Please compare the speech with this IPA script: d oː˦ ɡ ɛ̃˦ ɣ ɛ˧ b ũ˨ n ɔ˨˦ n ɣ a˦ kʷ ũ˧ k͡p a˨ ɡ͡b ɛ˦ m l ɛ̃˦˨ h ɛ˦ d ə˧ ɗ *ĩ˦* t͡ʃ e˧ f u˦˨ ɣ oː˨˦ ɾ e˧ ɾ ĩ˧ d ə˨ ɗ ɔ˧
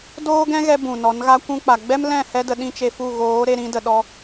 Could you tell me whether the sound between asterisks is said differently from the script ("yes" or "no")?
no